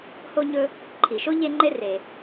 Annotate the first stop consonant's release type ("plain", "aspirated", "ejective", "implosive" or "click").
click